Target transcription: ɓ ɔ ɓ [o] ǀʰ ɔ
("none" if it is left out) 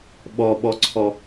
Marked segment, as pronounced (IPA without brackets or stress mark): ɔ